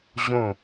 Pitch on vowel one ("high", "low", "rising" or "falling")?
falling